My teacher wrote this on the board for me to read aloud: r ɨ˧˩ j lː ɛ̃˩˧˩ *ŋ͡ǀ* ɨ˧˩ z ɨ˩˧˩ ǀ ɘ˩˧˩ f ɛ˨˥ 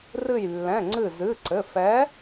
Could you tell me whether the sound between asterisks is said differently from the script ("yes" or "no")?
no